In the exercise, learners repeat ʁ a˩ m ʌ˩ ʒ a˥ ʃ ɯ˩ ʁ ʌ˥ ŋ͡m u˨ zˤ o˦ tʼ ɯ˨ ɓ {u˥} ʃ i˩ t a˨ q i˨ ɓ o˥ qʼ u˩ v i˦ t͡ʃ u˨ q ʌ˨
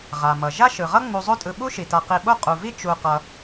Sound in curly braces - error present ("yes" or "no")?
no